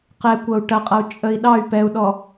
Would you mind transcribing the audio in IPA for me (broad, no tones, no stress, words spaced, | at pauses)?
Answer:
qɛkʷʌu̯ ʈɐqʼʌu̯ t͡ʃʼəi̯ ɗɑy̯ pɛu̯ɗɔ